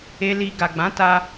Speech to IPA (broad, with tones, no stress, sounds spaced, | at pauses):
e˧ l i˧ ɡ a˨ ɡ͡b ã˨˦ t a˧